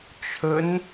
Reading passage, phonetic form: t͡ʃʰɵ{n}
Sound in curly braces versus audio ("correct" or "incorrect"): correct